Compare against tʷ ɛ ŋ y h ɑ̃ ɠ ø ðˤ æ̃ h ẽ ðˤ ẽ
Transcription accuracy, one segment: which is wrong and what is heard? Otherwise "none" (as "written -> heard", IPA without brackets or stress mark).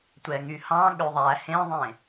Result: æ̃ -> æ